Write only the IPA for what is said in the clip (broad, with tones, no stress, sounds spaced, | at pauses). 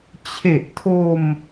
t͡ɕʰ e˨˩ ʔ tʰ o˧ m